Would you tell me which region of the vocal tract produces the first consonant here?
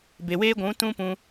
lips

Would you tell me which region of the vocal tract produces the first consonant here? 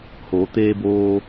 throat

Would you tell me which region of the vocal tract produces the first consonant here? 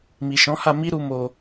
lips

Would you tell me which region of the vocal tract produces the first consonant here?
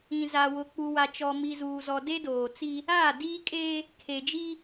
tongue tip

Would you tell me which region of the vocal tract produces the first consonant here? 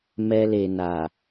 lips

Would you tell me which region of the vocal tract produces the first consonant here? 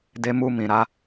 tongue tip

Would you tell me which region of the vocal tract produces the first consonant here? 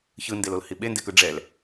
palate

